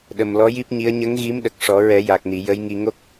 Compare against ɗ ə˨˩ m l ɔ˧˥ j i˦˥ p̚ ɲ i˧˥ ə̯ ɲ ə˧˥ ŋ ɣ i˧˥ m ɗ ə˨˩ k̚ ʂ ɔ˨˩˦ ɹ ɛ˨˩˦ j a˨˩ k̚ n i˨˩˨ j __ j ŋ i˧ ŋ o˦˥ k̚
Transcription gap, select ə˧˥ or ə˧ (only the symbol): ə˧˥